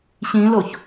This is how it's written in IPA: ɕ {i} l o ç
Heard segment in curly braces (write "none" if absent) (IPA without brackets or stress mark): ĩ